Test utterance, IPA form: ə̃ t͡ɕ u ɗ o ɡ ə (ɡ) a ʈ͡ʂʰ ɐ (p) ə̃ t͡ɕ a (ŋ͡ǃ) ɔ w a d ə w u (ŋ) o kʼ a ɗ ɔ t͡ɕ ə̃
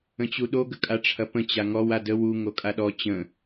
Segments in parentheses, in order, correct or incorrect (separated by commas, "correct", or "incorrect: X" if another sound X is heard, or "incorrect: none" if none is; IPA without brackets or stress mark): incorrect: kʼ, correct, incorrect: ŋ, correct